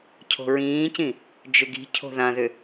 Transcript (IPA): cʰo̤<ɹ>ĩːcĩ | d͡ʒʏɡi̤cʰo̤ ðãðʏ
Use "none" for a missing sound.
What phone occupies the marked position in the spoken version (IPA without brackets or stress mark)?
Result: ɹ